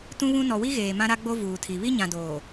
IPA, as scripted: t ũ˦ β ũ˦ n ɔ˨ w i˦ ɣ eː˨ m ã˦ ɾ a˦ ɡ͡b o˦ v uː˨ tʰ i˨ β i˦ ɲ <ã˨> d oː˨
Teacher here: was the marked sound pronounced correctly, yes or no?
yes